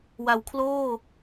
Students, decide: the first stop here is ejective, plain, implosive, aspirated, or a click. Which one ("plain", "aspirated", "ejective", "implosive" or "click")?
aspirated